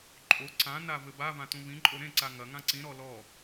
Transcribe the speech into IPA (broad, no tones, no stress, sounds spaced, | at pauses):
ǃʼ o ǀ ã n a v ɘ b a v ã t ũ v ĩ ǃʼ o ɾ ẽ ǀ a ŋ ɐ ŋ ã ǀ ĩ ɾ ɔ l ɔ